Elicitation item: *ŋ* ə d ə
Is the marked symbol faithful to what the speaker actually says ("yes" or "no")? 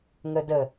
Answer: yes